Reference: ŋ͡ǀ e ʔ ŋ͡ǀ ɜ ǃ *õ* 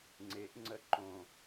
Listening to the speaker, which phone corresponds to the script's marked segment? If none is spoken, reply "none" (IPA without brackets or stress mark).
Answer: õ